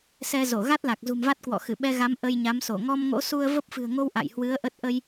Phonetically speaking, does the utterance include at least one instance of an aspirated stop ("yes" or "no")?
no